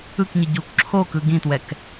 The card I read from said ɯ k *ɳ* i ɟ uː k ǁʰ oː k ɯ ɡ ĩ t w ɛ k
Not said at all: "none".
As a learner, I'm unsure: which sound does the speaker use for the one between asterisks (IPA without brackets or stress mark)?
ɲ